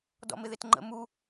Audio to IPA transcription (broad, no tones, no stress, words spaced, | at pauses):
dɔ̰mɪðɪtŋ͡ǃə̰ mu